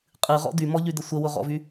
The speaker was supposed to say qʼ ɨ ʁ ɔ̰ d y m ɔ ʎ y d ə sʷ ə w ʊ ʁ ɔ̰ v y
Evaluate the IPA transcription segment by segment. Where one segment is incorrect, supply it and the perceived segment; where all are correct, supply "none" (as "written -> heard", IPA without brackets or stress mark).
none